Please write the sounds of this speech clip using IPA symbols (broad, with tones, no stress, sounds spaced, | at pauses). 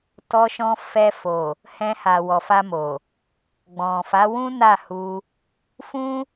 t ɔ˧ ʃ ɔ̃˧ f ɛ˧ f o˨ | h ɛ̃˧ h a˨ w ɔ˨ f a˧ m o˨ | ɡ͡b ɔ̃˨ f a˨˦ w ũ˦ n a˦˨ h u˧ | f ũ˦